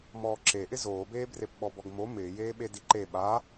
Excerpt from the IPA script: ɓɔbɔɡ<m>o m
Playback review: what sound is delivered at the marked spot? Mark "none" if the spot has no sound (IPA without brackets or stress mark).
m